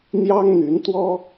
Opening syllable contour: high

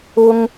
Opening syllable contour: high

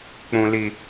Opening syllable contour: high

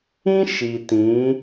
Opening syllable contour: high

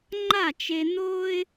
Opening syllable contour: falling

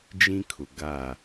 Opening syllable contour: high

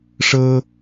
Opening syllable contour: high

